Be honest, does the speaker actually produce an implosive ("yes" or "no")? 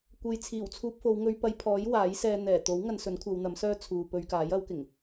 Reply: no